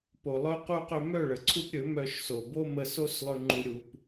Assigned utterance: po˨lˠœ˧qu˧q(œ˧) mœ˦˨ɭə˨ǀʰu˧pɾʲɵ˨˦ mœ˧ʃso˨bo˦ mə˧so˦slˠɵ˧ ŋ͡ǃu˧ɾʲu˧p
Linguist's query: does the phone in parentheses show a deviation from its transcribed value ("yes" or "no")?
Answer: yes